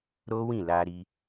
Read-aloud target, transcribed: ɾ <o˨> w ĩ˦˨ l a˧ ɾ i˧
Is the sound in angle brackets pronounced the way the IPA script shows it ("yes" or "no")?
no